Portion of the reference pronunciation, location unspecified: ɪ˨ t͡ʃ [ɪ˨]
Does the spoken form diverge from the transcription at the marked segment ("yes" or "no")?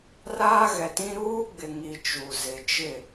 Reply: yes